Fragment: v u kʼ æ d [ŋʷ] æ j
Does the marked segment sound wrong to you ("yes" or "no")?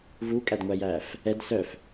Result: no